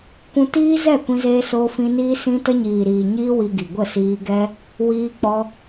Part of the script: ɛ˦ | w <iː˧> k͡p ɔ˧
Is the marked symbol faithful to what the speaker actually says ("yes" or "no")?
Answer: yes